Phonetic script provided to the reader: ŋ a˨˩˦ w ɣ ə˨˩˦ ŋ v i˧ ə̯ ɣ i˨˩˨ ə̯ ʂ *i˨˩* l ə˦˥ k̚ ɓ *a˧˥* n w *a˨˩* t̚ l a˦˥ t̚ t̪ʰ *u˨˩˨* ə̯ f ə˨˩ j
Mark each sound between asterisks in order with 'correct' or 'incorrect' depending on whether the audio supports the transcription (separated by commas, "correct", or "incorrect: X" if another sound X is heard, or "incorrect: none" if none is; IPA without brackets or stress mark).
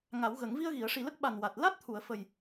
correct, incorrect: a˨˩, correct, correct